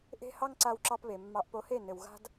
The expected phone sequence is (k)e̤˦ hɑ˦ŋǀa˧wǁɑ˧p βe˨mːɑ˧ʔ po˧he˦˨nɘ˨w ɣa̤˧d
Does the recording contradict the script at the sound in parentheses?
yes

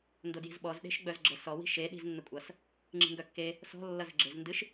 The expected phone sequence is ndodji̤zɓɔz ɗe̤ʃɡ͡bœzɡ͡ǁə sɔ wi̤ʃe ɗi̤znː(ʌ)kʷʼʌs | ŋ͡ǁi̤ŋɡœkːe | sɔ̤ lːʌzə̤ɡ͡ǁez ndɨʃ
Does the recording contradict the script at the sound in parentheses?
yes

